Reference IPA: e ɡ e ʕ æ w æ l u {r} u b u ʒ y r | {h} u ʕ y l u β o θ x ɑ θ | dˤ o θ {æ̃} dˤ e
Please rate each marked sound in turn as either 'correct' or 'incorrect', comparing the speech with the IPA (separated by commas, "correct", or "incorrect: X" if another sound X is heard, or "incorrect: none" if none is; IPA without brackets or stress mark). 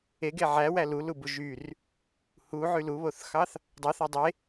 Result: incorrect: l, correct, incorrect: æ